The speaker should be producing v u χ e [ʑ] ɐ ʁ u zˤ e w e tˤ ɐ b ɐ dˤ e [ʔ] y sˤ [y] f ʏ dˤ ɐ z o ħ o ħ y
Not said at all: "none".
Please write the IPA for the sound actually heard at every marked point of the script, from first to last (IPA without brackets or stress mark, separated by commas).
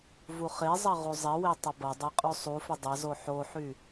zˤ, qʼ, u